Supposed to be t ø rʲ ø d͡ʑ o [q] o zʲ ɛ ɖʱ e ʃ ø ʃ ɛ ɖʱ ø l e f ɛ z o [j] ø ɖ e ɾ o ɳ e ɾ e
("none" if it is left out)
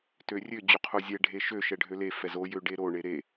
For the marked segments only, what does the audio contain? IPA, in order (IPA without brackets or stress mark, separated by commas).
qʰ, j